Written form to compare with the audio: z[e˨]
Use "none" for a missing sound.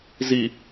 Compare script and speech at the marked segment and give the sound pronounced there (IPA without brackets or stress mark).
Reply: i˨